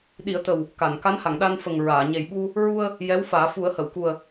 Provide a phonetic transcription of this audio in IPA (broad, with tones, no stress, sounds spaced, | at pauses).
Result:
ɗ i˨˩˦ ə̯ t̪ ə˨˩ w | k a˨˩˨ n k a˧˥ n h a˨˩˨ ŋ ɗ a˧ n f ə˨˩ ŋ ɹ aː˨˩˨ ɲ e˨˩ j ɓ u˧ | ɹ u˧ ə̯ | j ɛ˧˥ w f aː˨˩˦ f u˨˩˦ ə̯ h ə˨˩˨ w k u˨˩ ə̯